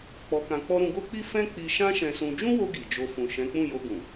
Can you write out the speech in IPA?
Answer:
k͡pɔ˧kã˧k͡pɔ˦ ɾũ˧ɡo˦k͡pi˦ fɛ̃˦ k͡pi˧ʃã˦ʃɛ̃˧ sũ˧ d͡ʒũ˦wo˧ ɡi˨d͡ʒo˧ fũ˨ʃɛ̃˨˦k͡pũ˦˨ jo˧ɡũ˨

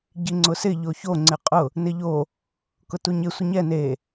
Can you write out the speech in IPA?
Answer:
ɟiŋ͡ǀʊsɪ ʎoço ŋ͡ǀɪqʼʊ | nɪʎo | kʊtuɲɪ sʷɪɲɛ ne

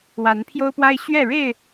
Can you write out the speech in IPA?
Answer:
wa˨˦npʰjo˦ʊ̯pwa˦ɪ̯ ɕɥɛ˥˨ ɻe˥˨ɪ̯

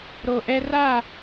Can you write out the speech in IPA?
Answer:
ɾo˨ʔɛ˦ ra˦˨

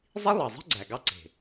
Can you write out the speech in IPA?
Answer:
zˤi˦lˠɑ˨zˤe̤˦ ɡ͡ǀæ˨ɡɑ˦ǀe̤˨

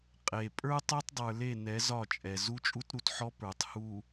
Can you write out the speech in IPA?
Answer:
qʼe˨ pʼə˞˦tˤe˦tˤdˤə˞˨ le˦˨nɛ˨˦z ɒ˦˨t͡ʃʼɛ˨ zu˦t͡ʃʼu˦tɾu˨tħɔ˦ pə˞˨tˤ hu˨

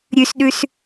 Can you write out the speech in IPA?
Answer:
ɾʲʉsɗʉs

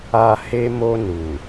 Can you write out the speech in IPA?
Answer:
a˨ he˧mo˧ nu˨

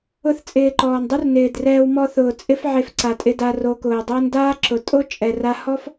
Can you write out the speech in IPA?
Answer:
ʊ˧θt͡sʼɪː˨ ǃɔː˨ndˤu˦rnɪː˨drɛː˧w mɔ˧θʊː˨ t͡sʼɪ˦fʕe˧fǀa˨tʼɪ˧ da˧ro˧ kʊː˨dˤʊː˦n daː˦ǁʊ˨ tʼo˦t͡ʃʼɛ˨ra˧hɔ˦f

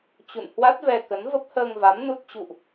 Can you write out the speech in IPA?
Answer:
t͡ɕṵ˧˨n hwa˦˥t̚vɛ˧kə˨˦n və˦˥p̚həː˧ŋva˨˦m nu˦˥t̚ t͡ɕṵ˧˨ʔ

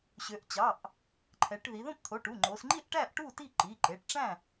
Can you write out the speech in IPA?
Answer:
ɕø˩˧ʔt͡ɕɑ˩˧˩ʔ | ǃʰɛ˩˧ʈ ði˩˧ðõ˥˨pt̪ʰo˩˧˩ʈu˩˧˩ ŋ͡ǃo˩˧sŋ͡ǃi˥˨ʔʈæ˥˨ʔ ʈu˥˨ti˥˨ ǃi˩˧˩ǃe˩˧˩ʈʈ͡ʂæ̃˥˨

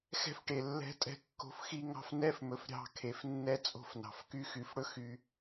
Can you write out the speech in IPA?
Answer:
xɛ̤˦fʈe˨lːɛ̤˦ tʼɛ̤˦kːo̤˦fxi˦ ŋɑ̤˦f nɛ˦fmɵ˨f ɾʲɑ̤˦˨kʰe˨fnːɛ˦ t͡sʼo̤˦fnɑ̤˨fky˦ xy˨fɽɵ˦ xy˨

